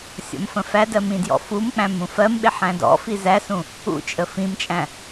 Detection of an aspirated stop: absent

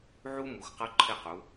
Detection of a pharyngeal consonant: present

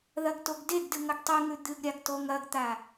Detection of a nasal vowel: absent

